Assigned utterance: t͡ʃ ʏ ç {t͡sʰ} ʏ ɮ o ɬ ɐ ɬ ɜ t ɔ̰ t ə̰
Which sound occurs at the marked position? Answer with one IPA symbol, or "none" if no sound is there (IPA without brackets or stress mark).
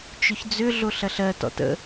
d͡z